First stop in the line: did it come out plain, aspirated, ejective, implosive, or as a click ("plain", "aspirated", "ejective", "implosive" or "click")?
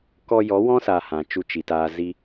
plain